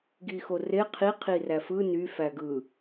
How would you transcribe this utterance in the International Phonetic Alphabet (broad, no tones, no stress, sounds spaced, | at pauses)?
ɡ i x o r e qʰ i qʰ i r æ f ɯ n y f æ ɡ ɯ